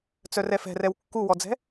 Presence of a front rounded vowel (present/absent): present